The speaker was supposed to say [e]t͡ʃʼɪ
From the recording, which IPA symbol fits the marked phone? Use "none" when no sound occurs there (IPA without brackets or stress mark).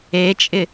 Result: e